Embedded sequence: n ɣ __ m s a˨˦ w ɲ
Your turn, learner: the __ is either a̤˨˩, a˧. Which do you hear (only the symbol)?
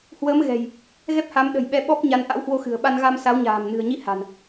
a˧